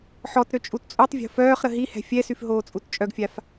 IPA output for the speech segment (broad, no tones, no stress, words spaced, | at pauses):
ħɔtɾø t͡ʃʼutt͡sʼutˤvʲo̤ fœːχɾə ɦihɛ̤ fʲɛsyf ɦoːt͡sʼutt͡ʃʼœɡfʲaf